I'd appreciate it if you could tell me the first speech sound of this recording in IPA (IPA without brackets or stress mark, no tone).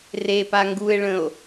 r